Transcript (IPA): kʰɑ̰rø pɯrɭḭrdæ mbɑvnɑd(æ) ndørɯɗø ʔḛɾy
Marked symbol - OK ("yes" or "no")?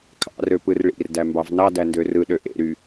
yes